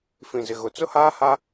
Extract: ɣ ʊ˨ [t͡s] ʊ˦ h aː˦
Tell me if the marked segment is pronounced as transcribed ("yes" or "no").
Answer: yes